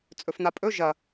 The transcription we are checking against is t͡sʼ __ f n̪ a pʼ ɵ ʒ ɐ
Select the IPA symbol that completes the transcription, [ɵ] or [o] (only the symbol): ɵ